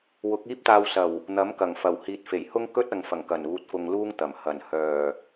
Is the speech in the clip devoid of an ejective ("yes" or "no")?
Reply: yes